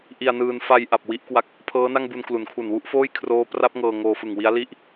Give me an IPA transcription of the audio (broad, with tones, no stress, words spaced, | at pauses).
ʔi˧a̯nɯː˧n fa˧j ʔa˨˩p̚wi˦˥ʔkwa˦˥k̚ | pʰɤː˦˥na˥˩ŋbu˧n klu˩˦nkʰu˨˩n wu˥˩ʔfoː˥˩jkʰroː˦˥ pra˦˥p̚ ŋɤː˧ŋoː˧fɯ˨˩ŋ wi˦˥a̯li˥˩ʔ